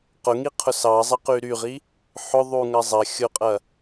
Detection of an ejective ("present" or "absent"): present